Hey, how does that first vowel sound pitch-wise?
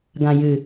low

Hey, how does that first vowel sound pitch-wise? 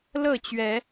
falling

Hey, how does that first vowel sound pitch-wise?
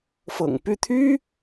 low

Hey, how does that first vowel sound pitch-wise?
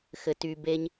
low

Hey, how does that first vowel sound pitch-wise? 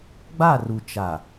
falling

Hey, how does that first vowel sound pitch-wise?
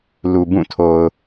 low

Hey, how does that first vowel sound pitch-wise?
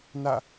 falling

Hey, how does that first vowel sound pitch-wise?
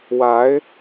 rising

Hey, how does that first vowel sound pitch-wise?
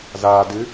low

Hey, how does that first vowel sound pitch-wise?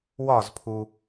falling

